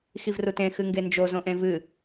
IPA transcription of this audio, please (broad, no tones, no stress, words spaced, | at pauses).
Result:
xivrutẽ xɨŋɡend͡ʒo zõʔẽvɨ